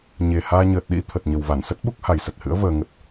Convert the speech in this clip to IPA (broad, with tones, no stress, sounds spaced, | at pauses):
ɲ e˨˩ h aː˧ ɲ əː˨˩ t̚ ɗ ḭ˧˥ t̪ʰ ə˨˩ t̚ ɲ ə˨˩ w v a˧˩ n s ə˦˥ t̚ ɓ u˦˥ k̚ h a˨˩ j s ə˨˩ t̚ h ɨ̰˧˥ ə̯ v əː˧ ŋ ə˦˥ t̚